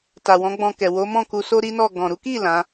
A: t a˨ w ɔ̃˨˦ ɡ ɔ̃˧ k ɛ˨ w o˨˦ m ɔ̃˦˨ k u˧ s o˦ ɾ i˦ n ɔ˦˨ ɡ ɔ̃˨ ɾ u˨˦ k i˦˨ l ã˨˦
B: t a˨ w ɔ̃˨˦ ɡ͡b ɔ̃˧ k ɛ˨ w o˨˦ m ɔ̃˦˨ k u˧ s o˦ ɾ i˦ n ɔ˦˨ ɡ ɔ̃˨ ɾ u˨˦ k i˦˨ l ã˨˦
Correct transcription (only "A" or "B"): B